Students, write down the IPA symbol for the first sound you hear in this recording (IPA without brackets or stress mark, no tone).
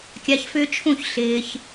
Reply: kʲ